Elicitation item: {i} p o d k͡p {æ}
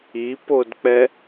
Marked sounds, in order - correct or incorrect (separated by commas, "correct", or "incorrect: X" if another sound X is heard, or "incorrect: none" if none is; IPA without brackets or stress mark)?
correct, incorrect: ɛ